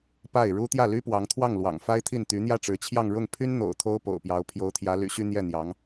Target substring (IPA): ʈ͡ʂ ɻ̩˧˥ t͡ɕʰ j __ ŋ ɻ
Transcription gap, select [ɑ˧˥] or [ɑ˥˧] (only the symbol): ɑ˥˧